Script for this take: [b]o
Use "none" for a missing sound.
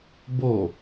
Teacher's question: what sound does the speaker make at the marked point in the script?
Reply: b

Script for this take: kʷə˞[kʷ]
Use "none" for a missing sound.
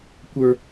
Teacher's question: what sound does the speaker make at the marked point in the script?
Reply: none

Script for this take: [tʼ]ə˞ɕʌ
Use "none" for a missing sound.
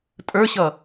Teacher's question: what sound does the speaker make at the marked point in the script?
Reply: tʼ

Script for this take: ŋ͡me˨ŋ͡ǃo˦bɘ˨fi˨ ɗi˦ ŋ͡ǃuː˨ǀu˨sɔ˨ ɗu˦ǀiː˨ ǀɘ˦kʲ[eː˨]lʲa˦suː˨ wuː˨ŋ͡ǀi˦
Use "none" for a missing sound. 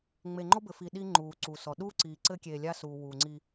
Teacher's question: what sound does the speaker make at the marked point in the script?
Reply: eː˨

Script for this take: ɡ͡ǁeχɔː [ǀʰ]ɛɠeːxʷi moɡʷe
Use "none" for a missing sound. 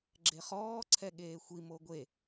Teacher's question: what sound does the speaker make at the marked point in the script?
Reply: ǀʰ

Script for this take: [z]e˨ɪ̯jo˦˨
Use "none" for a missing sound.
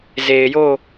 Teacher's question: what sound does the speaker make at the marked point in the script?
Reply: z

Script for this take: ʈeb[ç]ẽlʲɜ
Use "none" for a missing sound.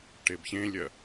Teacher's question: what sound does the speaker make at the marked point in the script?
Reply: ç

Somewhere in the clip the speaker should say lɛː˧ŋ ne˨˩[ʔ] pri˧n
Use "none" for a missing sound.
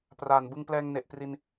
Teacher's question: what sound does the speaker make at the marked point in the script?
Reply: ʔ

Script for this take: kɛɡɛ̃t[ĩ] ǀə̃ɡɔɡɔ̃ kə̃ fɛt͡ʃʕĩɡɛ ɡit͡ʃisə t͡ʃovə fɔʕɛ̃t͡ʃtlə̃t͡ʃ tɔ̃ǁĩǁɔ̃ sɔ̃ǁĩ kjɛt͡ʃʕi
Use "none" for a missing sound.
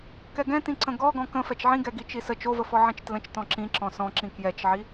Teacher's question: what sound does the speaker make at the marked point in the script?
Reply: ĩ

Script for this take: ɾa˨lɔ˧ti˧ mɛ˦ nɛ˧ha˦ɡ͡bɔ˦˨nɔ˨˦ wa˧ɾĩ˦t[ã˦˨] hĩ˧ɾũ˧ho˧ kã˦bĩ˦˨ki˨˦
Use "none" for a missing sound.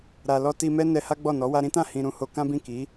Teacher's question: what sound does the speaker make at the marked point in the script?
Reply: ã˦˨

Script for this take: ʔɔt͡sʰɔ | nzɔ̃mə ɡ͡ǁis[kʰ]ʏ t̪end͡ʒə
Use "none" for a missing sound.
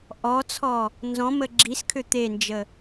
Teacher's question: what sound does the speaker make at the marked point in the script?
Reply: kʰ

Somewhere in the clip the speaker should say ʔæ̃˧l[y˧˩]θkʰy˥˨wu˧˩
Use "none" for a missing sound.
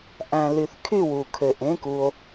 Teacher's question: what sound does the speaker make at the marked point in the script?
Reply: y˧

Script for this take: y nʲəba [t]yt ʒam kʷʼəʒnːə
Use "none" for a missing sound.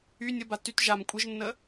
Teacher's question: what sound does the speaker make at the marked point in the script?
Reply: t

